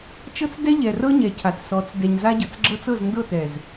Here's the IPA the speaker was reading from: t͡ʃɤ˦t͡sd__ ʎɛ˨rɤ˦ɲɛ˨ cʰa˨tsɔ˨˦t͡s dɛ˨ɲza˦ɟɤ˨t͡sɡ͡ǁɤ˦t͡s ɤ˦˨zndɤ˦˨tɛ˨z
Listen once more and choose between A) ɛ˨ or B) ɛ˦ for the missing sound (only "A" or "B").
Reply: B